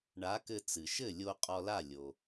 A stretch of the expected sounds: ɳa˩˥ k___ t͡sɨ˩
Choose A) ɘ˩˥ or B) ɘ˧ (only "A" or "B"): B